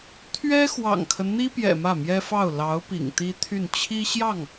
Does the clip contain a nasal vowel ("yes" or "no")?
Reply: no